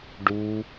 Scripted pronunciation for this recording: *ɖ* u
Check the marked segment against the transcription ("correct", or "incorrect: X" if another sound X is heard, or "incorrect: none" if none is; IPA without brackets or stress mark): correct